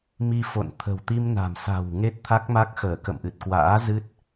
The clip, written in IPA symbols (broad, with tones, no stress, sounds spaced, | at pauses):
m i˧ f o̰˧˨ n t̪ʰ ə̤˨˩ w t̪ i˧ m n a̤˨˩ m s a̤˨˩ w ŋ e˦˥ t̚ t̪ʰ a˦˥ k̚ m a˦˥ k̚ x əː˧˩ k ə̰˧˨ m ʔ ɨ˨˩ t̚ k w a̰ː˧˥ z ɨ˦˥ t̚